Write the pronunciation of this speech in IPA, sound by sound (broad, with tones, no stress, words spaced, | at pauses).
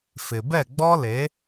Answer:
fɪ˨ bɛ˦˨ɡ͡bɔ˦le˨˦